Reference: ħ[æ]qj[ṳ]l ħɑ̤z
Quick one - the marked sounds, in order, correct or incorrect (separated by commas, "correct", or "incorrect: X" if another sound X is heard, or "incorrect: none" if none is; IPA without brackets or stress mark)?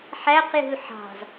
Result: correct, correct